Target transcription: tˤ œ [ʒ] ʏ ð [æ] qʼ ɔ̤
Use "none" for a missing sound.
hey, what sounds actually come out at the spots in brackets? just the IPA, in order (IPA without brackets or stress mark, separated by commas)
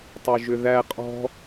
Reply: ʒ, æ